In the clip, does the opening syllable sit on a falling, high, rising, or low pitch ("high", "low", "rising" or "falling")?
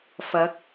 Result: rising